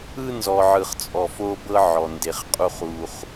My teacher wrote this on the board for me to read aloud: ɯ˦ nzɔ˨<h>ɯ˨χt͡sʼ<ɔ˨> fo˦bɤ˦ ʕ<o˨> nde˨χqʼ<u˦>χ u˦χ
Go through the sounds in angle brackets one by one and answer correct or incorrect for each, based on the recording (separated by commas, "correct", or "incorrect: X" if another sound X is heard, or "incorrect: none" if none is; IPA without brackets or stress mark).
incorrect: ʕ, correct, incorrect: ɔ˨, correct